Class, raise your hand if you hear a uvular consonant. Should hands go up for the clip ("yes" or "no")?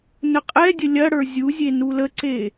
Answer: yes